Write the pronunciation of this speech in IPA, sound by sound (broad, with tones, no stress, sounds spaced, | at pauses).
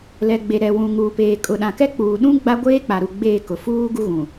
l ɛ˨ ɡ͡b e˨ ɾ ɛ˨ w ũ˨ ŋ uː˨ p eː˨ kʼ ʊ˨ ɗ ã˨ k ɛ˦ k͡p uː˨ ɗ ũ˦ ɡ͡b a˦ ɡʷ eː˦ k͡p a˨ ɾ u˨ ɡ͡b eː˦˨ k ʊ˨ f uː˦ ɡ u˦ ɣ ũ˨